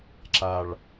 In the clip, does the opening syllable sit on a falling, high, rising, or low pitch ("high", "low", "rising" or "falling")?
low